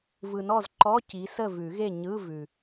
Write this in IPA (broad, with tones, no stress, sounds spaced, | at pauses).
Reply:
v ɯ˨ n ɔ˥˨ z ǃ ɔ˧˥˧ c i˨˦ s ə˥˨ v ʉ˨˩˦ ɣ e˥˨ ɲ ɯ˧˥˧ v ʉ˨